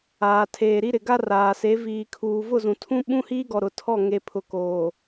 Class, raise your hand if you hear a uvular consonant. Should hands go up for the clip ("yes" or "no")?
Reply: no